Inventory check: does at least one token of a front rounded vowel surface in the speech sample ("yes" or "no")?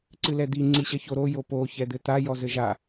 no